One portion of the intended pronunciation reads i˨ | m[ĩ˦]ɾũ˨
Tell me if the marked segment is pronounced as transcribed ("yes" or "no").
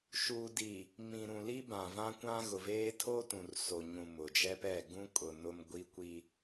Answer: no